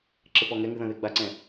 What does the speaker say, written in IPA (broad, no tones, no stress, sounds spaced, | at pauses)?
ǁ ɘ p ɔ ŋ ɛ ŋ ɨ ð ɐ̃ ð e ɡ͡b a ǀ ɛ̃